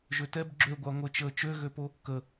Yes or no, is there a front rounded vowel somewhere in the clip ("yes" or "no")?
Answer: yes